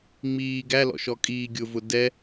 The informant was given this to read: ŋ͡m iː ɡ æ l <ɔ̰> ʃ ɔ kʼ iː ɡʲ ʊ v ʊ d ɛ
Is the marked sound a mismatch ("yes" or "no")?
no